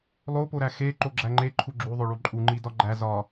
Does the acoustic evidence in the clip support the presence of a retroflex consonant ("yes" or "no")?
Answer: yes